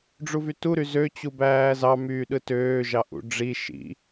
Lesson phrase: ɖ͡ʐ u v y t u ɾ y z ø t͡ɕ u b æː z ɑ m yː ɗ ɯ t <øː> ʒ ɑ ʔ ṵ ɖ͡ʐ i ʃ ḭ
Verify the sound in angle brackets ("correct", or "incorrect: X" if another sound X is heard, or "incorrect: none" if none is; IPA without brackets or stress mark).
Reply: correct